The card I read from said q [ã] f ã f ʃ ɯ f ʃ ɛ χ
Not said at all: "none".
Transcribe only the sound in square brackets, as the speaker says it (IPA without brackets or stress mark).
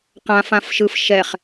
ã